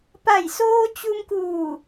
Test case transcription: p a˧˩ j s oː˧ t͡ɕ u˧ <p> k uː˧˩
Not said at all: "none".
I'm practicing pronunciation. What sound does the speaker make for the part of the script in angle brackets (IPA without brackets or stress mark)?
m